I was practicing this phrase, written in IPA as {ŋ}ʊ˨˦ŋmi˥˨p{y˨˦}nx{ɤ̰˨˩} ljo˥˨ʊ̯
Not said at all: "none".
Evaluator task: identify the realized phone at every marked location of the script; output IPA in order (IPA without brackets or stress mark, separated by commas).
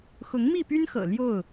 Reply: x, y˦, ɤ̰˨˩